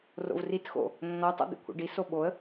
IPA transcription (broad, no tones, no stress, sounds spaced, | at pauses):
r o̰ v r i t x o̰ | nː ɔ tˤ o̰ d̪ ḛ kʷʰ ḛ ɖ i s o ɓ o ə̯